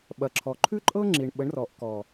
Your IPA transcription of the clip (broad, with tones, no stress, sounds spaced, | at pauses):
ɓ ɐ˨ ǁʰ ɔ˨ ǃʰ ʉ˦ ǃʼ ɤ˦ ŋ͡ǁ i˨ ɳ ɓ ə˨˦ ɳ r ɔ˨ ʔ k ɔ˨